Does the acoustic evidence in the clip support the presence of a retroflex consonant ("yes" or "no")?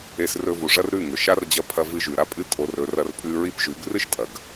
yes